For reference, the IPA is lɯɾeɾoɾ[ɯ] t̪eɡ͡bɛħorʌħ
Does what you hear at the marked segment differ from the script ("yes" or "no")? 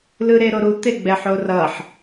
yes